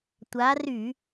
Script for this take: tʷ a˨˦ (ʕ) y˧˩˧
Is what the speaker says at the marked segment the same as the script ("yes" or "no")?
no